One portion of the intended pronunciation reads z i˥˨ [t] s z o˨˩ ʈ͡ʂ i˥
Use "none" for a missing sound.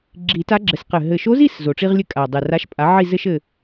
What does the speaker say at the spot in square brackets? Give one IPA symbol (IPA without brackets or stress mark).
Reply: none